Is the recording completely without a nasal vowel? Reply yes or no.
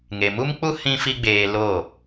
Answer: no